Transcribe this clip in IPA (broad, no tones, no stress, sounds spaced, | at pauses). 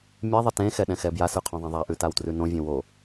mʲ ɛ ðˤ ə t ẽ x ɛ ɗ ɛ̃ x ɛ b j a s ʉ qʰ õ ðˤ ẽ ðˤ a ʔ ʉ t a w t r ʉ n õ vʲ ẽ w o